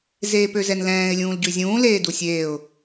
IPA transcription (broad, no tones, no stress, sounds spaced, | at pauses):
z eː p ø z ɛ n l ɛ̃ː ɪ̯ lʲ ũː l ɟ ʉ zʲ ũː l eː d u sʲ eː ʊ̯